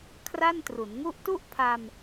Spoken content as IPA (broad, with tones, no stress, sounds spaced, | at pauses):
kʰ r a˥˩ n t r u˩˦ n ŋ u˥˩ ʔ t u˥˩ ʔ pʰ a˧ m